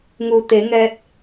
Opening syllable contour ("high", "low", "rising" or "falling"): low